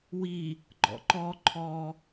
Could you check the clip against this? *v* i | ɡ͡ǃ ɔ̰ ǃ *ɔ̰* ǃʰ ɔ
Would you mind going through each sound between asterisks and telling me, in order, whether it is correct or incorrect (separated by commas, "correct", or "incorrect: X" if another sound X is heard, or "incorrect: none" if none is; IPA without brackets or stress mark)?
incorrect: w, incorrect: ɔ